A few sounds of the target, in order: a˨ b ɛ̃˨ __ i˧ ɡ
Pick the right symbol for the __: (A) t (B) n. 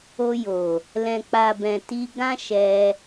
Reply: A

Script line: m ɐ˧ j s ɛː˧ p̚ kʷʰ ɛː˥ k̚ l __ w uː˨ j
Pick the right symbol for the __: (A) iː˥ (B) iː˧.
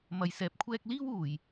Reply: A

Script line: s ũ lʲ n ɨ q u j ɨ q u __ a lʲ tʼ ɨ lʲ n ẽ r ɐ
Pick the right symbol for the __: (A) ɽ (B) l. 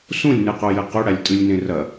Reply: A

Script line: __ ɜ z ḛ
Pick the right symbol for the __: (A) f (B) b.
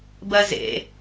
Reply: B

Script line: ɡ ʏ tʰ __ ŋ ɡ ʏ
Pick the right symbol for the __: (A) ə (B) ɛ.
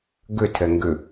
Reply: B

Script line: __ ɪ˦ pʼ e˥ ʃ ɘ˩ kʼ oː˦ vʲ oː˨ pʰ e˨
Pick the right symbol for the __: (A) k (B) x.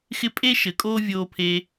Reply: B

